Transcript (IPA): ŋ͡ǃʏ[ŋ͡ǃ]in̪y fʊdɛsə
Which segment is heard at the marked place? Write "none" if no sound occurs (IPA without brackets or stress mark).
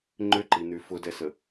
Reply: ǃ